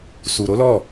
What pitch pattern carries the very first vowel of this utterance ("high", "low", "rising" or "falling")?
low